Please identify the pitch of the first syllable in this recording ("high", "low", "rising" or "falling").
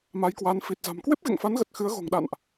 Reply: rising